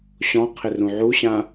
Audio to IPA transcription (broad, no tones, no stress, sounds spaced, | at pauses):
ɕ ɔ̃ qʰ ɪ r ũ ʕ u ɕ ã